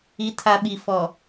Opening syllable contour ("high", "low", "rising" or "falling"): low